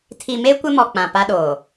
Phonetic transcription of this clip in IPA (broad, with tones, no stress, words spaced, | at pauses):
tʰi˨me˦ kʷɪ˦mɔ˨ k͡pã˨pa˦ɗoː˨